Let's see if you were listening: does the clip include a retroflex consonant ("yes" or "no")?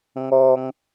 no